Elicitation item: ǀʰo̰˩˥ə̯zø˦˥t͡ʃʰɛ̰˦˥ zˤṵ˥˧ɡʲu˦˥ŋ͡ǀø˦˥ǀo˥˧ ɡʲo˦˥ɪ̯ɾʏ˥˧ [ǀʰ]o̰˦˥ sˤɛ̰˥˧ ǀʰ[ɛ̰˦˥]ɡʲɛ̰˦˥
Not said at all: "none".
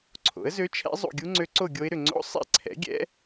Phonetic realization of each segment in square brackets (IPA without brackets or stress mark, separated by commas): ŋ͡ǀ, ɛ̰˩˥